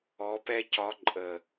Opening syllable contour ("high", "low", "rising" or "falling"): rising